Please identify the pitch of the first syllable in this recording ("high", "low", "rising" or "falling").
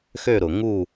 falling